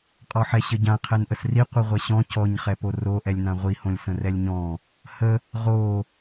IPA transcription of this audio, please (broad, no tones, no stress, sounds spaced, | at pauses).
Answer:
qʼ ɔ ħ ɛ ɕ ə ɟ ã qʰ ɛ n ʔ ə s r i qʷ i ʁʷ ɛ ɕ ɔ̃ c ɔ ɲ χ ɛ p o r o ʔ ɛ lʲ n ã ʁʷ i h õ lʲ s ə̃ r ɛ lʲ ɲ ɔ̃ | h ə | ʁ o